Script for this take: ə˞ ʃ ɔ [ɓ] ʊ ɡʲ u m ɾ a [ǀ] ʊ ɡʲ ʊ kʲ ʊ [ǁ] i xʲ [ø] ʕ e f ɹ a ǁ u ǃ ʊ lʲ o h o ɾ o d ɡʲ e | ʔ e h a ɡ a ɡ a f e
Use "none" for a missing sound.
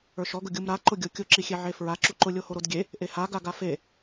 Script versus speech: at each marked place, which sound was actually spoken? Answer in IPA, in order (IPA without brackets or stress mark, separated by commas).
ɡ, ǃ, ǁ, e